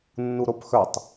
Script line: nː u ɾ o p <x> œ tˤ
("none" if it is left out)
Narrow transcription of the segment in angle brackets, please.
x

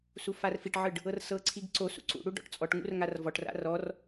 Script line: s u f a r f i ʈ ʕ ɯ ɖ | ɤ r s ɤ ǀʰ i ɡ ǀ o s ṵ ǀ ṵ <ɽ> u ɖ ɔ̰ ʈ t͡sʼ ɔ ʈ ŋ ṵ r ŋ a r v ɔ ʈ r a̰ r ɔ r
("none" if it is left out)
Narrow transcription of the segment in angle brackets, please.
ɽ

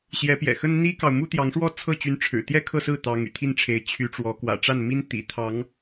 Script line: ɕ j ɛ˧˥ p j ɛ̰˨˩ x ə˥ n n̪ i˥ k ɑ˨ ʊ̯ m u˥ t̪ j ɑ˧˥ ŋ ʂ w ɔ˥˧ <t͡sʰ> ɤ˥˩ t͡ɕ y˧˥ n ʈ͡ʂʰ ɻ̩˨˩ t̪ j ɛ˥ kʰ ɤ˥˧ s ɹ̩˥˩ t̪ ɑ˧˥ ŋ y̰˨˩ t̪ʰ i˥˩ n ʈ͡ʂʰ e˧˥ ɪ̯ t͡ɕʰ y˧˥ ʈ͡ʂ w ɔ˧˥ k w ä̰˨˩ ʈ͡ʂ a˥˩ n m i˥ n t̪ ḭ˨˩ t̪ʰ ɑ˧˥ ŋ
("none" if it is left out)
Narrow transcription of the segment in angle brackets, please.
t͡sʰ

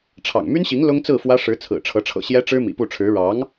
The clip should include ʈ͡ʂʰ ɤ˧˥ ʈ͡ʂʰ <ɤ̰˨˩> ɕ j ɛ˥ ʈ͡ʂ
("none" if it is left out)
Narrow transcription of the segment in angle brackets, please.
ɤ̰˨˩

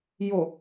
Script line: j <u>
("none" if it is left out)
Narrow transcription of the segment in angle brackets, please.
o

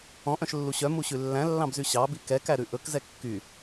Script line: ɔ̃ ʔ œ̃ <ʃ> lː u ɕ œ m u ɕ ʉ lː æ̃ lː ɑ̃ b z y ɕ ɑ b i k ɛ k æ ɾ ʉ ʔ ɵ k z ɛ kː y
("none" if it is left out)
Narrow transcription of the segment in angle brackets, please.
ʃ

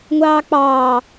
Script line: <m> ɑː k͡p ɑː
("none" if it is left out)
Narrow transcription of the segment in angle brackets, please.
ŋʷ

